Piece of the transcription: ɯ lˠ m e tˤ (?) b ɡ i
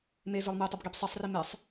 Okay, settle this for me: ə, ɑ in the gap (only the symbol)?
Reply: ə